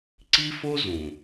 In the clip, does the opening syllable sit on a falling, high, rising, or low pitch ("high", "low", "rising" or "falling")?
high